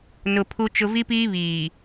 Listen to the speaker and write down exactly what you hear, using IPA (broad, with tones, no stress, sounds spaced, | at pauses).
n ʊ˨ pʰ u˦ t͡ʃ ʊ˦ v i˦ p iː˦ β iː˨